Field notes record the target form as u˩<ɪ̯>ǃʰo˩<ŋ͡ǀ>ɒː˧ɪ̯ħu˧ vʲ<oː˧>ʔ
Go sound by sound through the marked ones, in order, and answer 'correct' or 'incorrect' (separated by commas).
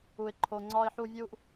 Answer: correct, correct, incorrect